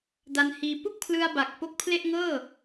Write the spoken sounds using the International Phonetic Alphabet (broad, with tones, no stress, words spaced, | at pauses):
da˧nhiː˧ pu˥˩k̚pʰlɯ˧a̯ba˨˩k̚ po˦˥k̚pʰle˥˩ʔ ŋɤː˥˩